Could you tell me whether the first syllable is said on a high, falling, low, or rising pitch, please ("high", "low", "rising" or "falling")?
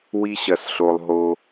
high